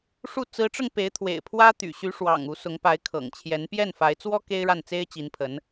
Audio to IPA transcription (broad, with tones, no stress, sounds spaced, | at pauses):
ʂ u˥˩ t͡s ɹ̩˧˥ ʈ͡ʂ ɤ˧ ŋ p e˧˥ ɪ̯ t̪ʰ w ḛ˨˩ ɪ̯ pʰ w ä˥ t̪ y̰˨˩ ɕ y˧˥ ʂ w ɑ̰˨˩ ŋ u˧˥ s ʊ˧˥ ŋ p a˧˥ ɪ̯ kʰ ɤ̰˨˩ ŋ t͡ɕʰ j ɛ˧˥ n p j ɛ˥˩ n f a˧˥ ɪ̯ t͡s w ɔ˥ k e˥ ɪ̯ ɻ a˥˩ n t͡s e˥ ɪ̯ t͡ɕ i˧˥ n pʰ ə˧˥ n